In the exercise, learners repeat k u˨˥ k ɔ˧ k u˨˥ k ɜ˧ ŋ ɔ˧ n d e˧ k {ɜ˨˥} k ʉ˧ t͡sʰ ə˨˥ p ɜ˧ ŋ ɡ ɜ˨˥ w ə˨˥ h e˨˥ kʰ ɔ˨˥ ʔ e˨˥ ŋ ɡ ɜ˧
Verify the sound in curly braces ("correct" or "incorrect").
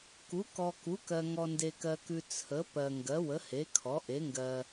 incorrect